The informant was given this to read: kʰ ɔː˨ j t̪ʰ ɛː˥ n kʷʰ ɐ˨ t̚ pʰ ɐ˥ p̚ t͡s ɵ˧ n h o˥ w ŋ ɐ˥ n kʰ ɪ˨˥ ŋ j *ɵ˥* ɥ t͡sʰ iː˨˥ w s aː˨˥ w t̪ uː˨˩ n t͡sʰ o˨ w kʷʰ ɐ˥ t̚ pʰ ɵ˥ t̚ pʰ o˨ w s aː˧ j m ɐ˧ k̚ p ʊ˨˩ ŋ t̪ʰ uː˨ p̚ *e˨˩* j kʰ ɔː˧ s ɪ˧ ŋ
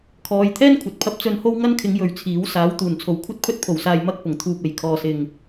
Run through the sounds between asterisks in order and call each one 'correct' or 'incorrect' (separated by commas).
incorrect, correct